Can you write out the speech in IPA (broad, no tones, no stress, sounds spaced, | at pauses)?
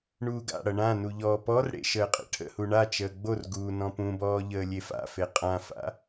ɳ uː ɡ a̰ ɽ ʌ ɳ ã n u ʎ ɔː p ɔ r ɽ ḛ ʃ əː qʼ ḛ ʈʰ ə̰ h u ɳ a t͡ʃ əː ɡ͡b o r ɡ uː n ɔ̃ p ũ b ɔː ʎ əː lʲ e f a̰ f e qʼ ã f a̰